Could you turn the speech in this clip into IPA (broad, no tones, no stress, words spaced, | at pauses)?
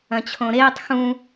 ɐ̃t͡ɕʰõɾeːtˤ xũ